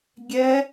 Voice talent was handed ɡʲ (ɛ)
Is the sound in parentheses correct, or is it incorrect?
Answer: correct